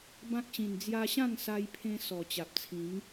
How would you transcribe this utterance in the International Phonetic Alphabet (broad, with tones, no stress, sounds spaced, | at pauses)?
b ã˦ k̚ ɕ ĩ˨˩ n d͡z j a˧ ɕ ã˥˧ ŋ s a˧ j pʰ ẽ˧ s ɔ˨˩ t͡ɕ a˨ p̚ t͡sʰ ĩ˨˦ ŋ